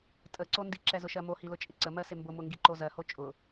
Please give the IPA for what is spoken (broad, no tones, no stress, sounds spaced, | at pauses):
tʼ ə ǀ o n d i ǁ ɛ z ʊ ʃ ɜ m o h i l ʊ t͡ʃʼ ɪ ǀ ə m ɜ s ɪ m b ʊ m ʊ ŋ ɡ i ǃ o z ɜ h o t͡ʃʼ ʊ